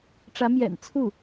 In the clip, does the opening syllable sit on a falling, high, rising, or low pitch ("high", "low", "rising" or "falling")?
rising